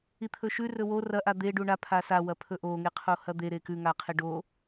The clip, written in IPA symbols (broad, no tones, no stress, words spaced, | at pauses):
it̪ʰɵʃʉ rɵwo rɐ ʔad̪e ɖuɳa pʰasa wɐpʰɵʔo ŋeqʰohɐd̪e ɾekʉ ŋaqʰeɖo